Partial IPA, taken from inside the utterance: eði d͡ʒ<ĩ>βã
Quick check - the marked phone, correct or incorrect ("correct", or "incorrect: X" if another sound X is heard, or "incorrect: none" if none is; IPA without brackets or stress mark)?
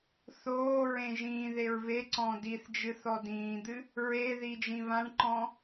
correct